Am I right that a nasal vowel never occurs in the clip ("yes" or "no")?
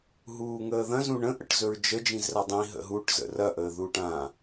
no